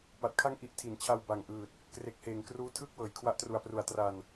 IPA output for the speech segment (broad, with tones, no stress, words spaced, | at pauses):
pa˨˩t̚kʰa˥˩ŋʔi˦˥ʔ tʰi˩˦nt͡ɕʰa˧w ba˨˩ŋʔɯː˨˩t̚ | kre˨˩k̚heː˩˦ŋ kruː˦˥ tʰɯː˥˩k̚wɤː˩˦j kʰwa˦˥ʔtru˨˩a̯pru˩˦a̯ tra˧n